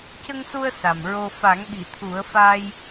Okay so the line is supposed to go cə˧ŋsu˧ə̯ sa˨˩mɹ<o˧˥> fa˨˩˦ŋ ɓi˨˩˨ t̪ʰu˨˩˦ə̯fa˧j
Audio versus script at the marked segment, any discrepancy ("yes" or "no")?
yes